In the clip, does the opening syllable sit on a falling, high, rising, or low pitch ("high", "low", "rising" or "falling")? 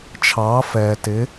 rising